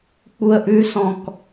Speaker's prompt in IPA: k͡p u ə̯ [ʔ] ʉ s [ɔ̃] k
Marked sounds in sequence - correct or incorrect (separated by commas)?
correct, correct